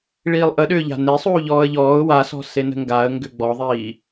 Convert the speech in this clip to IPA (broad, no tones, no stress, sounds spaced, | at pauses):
ɭ iː lˠ ʔ ə ɗ ʏː ʎ a̤ n e sˤ uː ʎ ɔː ə̯ ʎ ɔː ʊ̯ w a s ɔ̤ s e n ə̤ ŋ ɡ a ə̯ ŋ ɡ ʏ ɡ͡b ɔ ðˤ iː